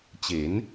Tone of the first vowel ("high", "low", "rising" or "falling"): rising